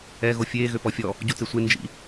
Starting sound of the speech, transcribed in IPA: ɛ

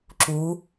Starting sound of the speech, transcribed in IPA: ǁ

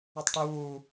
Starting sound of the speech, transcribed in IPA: i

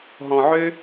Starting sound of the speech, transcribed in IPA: ɦ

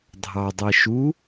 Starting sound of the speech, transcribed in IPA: dʱ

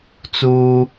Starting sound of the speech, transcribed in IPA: t͡s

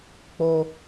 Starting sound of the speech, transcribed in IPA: k͡p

